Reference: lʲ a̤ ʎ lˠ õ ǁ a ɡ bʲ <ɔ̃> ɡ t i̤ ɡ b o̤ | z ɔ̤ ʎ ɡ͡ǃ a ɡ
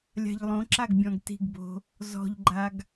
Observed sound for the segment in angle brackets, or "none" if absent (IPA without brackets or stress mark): ɔ̃